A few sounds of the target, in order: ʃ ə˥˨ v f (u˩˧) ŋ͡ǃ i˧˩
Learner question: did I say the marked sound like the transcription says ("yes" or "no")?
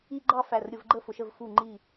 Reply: no